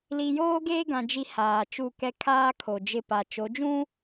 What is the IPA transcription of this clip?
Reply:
li˨joː˦ɡeː˦ɡã˨ d͡ʒi˦haː˨t͡ʃu˦˨kɛ˦ kʰaː˦ kʰo˨d͡ʒɪ˦˨pa˨ t͡ʃo˨˦d͡ʒũ˦

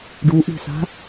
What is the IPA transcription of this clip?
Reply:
ɖuʔi̤sa̤

